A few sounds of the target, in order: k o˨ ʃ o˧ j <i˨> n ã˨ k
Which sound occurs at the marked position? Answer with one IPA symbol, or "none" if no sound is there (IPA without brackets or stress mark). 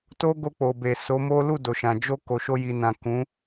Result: i˨